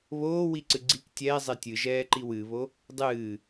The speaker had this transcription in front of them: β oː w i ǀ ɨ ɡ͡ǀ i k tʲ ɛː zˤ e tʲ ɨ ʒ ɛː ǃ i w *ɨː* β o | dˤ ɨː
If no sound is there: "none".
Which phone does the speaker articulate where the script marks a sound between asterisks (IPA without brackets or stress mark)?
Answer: ɨ